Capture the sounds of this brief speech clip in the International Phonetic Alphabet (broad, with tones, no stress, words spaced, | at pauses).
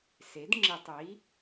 se˩˥dŋ͡ǁi˧˩˧tˤi˩˥